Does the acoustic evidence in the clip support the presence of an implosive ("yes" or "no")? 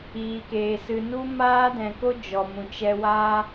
no